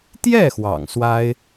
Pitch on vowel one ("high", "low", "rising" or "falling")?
falling